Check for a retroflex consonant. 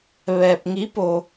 absent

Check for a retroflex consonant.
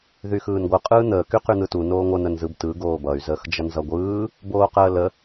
absent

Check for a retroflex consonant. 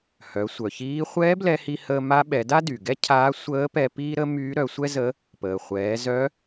absent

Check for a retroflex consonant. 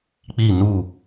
absent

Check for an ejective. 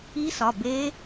absent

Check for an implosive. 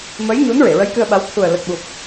present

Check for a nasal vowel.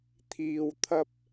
absent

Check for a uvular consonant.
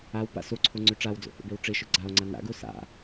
absent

